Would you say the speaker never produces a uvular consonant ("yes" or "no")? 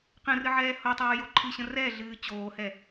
no